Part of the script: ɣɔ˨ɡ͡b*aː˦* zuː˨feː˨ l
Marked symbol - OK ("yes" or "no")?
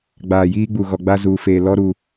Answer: no